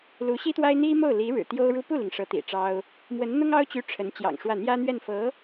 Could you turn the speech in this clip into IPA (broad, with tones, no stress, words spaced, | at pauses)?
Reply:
lu˧˥ɕi˥t̪wa˥ɪ̯ n̪i˥mo˥˩ʊ̯li˧˥ ɻɻ̩˨˩t̪jo˥ʊ̯ɻu˥ pu˥˩li˩ŋ ʂɤ˧˥t̪ḭ˨˩ʈ͡ʂɑ˥ʊ̯ | mwə˧˥nn̪ʊ˥ŋɑ˥ʊ̯t͡ɕy˧˥ ʈ͡ʂʰə˧˥nt͡ɕjɑ̰˨˩ŋʂwä˥˩ n̪jä˥n̪ɥɛ˥˩nfɤ˧˥